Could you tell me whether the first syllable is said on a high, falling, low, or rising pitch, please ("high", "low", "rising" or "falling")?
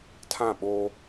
falling